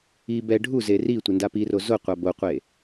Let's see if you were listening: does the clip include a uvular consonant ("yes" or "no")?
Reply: yes